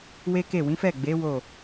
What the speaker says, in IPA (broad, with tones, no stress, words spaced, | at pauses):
we˦ke˦˨ wĩ˨˦fɛ˦˨ɡ͡be˨˦ wo˦˨